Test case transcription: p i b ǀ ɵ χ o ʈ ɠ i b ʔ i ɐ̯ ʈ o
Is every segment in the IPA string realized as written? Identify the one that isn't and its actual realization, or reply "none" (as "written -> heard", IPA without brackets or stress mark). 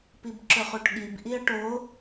ǀ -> ǁ